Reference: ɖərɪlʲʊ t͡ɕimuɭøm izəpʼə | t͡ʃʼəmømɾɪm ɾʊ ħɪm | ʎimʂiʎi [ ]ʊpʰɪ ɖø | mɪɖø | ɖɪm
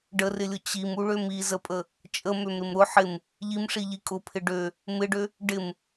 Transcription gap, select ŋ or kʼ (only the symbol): kʼ